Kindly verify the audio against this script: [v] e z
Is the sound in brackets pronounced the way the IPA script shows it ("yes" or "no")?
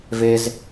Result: yes